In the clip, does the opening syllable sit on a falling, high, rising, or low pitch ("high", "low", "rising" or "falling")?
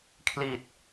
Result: low